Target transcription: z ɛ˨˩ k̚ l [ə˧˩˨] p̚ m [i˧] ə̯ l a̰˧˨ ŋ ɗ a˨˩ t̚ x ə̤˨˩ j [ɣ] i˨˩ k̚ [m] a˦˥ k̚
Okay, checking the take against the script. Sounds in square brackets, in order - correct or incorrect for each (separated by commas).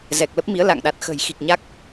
incorrect, incorrect, incorrect, incorrect